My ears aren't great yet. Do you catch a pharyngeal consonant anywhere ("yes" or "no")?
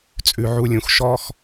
yes